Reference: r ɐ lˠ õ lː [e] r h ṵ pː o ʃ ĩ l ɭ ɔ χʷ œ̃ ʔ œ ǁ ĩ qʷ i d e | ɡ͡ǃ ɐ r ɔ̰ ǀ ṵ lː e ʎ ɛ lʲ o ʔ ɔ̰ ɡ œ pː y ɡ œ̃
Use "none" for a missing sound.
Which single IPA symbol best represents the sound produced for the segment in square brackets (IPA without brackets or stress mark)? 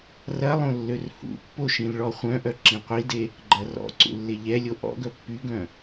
ø